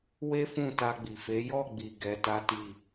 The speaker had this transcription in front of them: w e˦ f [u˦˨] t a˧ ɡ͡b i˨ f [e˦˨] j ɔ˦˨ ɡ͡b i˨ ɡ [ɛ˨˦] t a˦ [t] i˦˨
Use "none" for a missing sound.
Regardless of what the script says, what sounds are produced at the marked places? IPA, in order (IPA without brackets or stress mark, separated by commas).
ũ˦˨, e˨˦, ɛ˨˦, t